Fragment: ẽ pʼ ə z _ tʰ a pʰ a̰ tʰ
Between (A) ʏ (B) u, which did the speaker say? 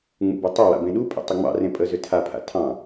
A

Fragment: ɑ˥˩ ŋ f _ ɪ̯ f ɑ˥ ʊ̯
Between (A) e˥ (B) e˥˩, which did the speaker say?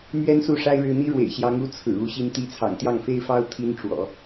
A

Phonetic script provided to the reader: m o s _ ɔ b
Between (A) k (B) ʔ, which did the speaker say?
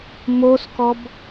A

